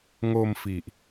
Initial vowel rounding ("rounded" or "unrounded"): rounded